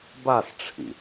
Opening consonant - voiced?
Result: yes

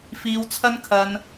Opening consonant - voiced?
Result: no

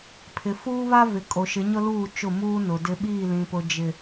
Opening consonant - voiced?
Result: no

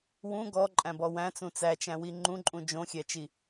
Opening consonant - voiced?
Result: yes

